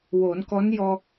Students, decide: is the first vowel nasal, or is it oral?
oral